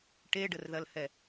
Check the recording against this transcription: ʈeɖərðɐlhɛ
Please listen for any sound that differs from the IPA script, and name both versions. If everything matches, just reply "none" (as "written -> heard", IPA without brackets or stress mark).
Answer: none